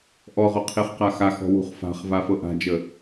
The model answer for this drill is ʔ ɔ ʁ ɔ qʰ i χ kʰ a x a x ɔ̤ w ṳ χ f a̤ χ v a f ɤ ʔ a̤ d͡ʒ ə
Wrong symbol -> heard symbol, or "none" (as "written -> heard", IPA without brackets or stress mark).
kʰ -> q